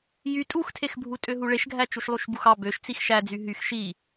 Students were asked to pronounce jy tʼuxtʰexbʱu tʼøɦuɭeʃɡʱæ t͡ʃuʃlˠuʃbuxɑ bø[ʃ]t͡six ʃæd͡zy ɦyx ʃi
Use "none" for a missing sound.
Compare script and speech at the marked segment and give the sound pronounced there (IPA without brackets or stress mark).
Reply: ʃ